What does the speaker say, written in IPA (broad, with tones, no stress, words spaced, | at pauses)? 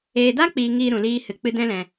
eː˨da˦k͡piː˨ŋiː˨ ɾũ˨liː˧ hɨ˨ k͡pɨ˧dɛ̃˦lɛ̃˨